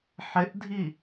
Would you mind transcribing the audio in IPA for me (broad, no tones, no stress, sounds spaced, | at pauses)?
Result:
ħ ɪ ʔ dʱ i